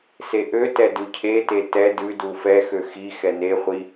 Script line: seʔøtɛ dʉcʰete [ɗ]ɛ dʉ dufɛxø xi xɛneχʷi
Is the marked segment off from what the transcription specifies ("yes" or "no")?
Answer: yes